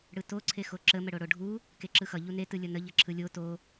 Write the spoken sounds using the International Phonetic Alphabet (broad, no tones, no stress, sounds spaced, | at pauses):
ɽ ɯ t o ǀʰ e x o ǁ ə m ə ɽ o ɽ o ɖʱ u | k e ǁ ɯ x ʌ ʎ u n e t ɯ lʲ ʌ n ə ʎ ʌ ǁʰ ɯ lʲ o t o